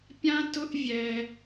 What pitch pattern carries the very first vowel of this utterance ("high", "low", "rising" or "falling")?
high